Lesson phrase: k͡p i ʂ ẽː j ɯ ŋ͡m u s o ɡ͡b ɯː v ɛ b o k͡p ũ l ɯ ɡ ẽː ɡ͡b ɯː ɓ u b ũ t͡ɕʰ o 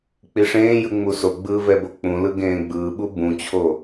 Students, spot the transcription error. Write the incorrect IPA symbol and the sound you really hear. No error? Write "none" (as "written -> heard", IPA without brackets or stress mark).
none